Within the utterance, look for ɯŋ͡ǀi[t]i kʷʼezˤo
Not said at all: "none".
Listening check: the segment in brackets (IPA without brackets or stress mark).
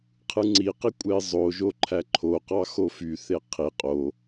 q